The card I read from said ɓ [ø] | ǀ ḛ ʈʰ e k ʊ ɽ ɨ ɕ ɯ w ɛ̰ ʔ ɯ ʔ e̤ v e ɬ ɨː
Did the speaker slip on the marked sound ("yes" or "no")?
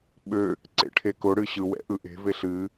no